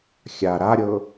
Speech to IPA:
xʲ a ɾ a ɾʲ ɤ

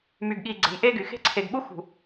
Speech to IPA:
m y˨ ɡ ɠ i˨ ɡ͡ǀ e̤˨ m ʔ e˦ ɡ y˨ x e̤˦ ǀʰ e˨ ɡ ɓ u˦ x ṳ˨

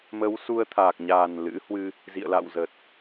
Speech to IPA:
m ə˨˦ w s u˧ ə̯ t̪ʰ aː˨˩ k̚ ɲ aː˨˩ n l ɨ̰˧˥ h w ɨ˧ | z ḭ˧˨ ə̯ l a̰˧˨ w z ə˨˩ t̚

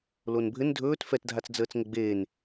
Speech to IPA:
l o n bʱ ɘ n dʱ ɵː t f ɛ t dʱ a t͡s d͡z əː t͡s ŋ ə ɡ͡b eː n

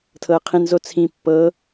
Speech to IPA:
tʰ ɤ ə̯ qʰ ĩ n z o t͡sʰ ĩ pː ɤ

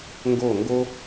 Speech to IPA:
ŋ ɡ o˦˨ ŋ ɡ o˦

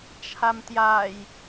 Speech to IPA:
t͡ʃʰ a m t j a j

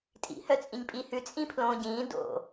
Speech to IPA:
tʼ ḭ h œ t͡sʼ ĩ ɲ pʼ i h ʉ t͡sʼ ĩ pʰ l õː ɟ ĩː d o̰

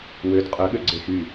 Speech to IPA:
w ø d qʼ œ ɠ ø ɡ͡ǀ e x y

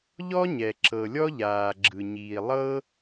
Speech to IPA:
ʎ ɔ˥ ɲ ɛ˩ ǁ ɤ˩ lʲ ɔ˥ ʎ aː˩ ɡ͡ǁ ɯ˩ ɲ iː˩ lˠ ɤ˥

